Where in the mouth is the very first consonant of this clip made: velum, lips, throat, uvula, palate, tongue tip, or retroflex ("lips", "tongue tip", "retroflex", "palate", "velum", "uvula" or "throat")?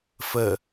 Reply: lips